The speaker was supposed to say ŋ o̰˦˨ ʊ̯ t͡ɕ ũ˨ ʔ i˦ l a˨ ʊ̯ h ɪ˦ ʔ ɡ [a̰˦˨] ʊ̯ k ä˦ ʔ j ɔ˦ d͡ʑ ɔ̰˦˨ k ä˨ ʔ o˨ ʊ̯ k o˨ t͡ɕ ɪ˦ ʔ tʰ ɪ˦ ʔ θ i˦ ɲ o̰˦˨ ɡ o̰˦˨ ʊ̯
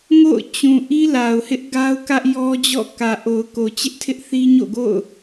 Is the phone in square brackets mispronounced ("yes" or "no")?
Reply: yes